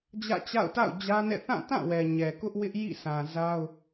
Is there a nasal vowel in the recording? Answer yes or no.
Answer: yes